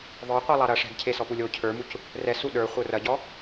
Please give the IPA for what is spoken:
ðˤ ə˞ qʷ i lˠ ɑ ɾ ɐ ʂ ɛ̤ ɡ cʰ e s ɔ p u lʲ o cʰ ə˞ m u c | r ɛ s u ɗ ə˞ χʷ ə˞ r ɐ ɟ ɔ

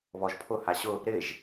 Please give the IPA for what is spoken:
β ɔ ʒ pʰ ʊ h a ɕ ʊ | ɾ ɪː ʒ

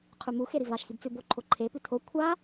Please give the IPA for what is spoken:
qʰ ʉ m u x e ɾ i v a ʃ x i b t͡s ʉ b o ǃʰ o ǃʰ e p ʉ tʰ o kʷʰ a

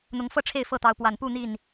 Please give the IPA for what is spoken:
n̪ ʊ˨˦ ŋ f ɤ˥˨ ʈ͡ʂʰ e˥˨ ɪ̯ f ɤ˥˨ t̪ ɑ˨˦ ʊ̯ p w a˨˩ n p u˥˨ n̪ i˥˨ n

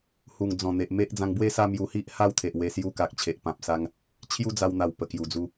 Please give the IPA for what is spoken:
h u˨˩ ŋ d͡z ɔ̃˨˩ n̪ e˨ ʔ m e˦ ʔ d͡z ã˧ ŋ b w e˥˧ s a˥˧ m j u˧ h i˦ ʔ h a˥˧ w t̪ʰ e˨ ʔ w e˧ s j u˧ k a˨ k̚ t͡ɕʰ e˨ ʔ p ã˨ p̚ s a˧ ŋ | t͡ɕʰ j u˦ d͡z a˧ w n̪ a˨˩ w p ə˨˩ k j u˨˩ d͡z u˧

